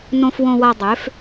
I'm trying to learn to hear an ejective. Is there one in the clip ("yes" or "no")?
no